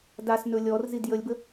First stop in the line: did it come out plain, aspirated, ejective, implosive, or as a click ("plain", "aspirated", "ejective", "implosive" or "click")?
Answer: plain